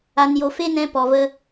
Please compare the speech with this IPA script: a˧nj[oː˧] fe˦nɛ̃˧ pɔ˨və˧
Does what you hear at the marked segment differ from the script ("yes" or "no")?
yes